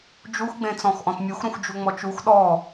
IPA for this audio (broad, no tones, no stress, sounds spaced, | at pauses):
d͡ʒ u x ɡ͡b ẽ t͡s ɔ̃ x ʔ ɔ̃ t mʲ u x ɾ ũ x d͡ʒ u ŋ͡m ɔ t͡ʃ u x ɗ ɔ